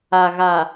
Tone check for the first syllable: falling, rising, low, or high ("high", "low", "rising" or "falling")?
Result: low